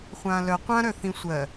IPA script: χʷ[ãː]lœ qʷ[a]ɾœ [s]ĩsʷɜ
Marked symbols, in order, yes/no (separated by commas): yes, no, no